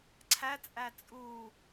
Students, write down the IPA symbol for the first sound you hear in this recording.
ǀʰ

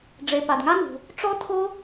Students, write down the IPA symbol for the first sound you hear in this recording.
ɖ͡ʐ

